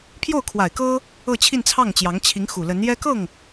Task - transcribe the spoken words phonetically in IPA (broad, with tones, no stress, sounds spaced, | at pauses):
pʰ j o˥˩ ʊ̯ kʰ w a˨˩ ɪ̯ k ɤ˥ | ɤ˥˧ t͡ɕʰ i˥˧ n t͡sʰ ɑ˥˩ ŋ t͡ɕ j ɑ˧˥ ŋ t͡ɕʰ i˧˥ ŋ x u˨˩ l ə˧˥ n j ɛ˥ k ɤ˥˩ ŋ